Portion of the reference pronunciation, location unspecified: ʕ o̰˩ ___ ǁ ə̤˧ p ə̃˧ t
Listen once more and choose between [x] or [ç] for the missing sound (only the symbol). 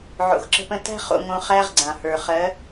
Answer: x